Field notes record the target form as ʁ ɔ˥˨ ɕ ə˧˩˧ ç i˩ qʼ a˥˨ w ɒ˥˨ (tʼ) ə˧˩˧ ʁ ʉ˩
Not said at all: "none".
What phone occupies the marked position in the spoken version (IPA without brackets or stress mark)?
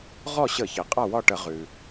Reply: ʈ